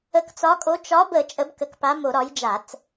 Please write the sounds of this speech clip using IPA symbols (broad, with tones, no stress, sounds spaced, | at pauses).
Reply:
ə˨˥ k t͡s ɒ˨˥ kʼ o˨˥ t͡ʃ ɒ˨˥ b ə˧˩˧ t͡ʃʼ ə˨˥ b k ə˨˥ k p a˨˥ m o˧˩˧ ɾ ɒ˨˥ j d͡ʒ a˧˩˧ t͡s